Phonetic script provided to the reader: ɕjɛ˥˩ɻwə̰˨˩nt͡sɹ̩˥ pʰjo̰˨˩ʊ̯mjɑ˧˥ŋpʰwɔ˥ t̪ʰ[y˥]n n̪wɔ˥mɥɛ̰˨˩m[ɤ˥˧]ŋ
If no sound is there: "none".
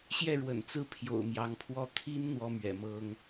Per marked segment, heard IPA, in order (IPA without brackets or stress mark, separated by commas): i˥, ɤ˥